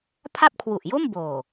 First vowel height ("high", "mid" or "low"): low